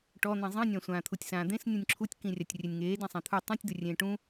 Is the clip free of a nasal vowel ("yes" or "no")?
no